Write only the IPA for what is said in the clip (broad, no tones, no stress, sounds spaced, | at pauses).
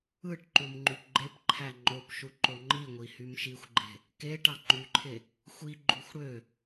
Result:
ɯ ʈ ǃ u m ŋ͡ǃ y p ɡ͡ǃ e p ǃʰ æ ŋ͡ǃ o p ʃ u ǃ o ŋ͡ǃ i ŋʷ i h y m ʃ i xʷ ɡ͡ǃ e̤ | k e ʈ ɑ ŋ͡ǃ y ǃʰ e | xʷ i ɡ͡ǃ u xʷ ɽ ø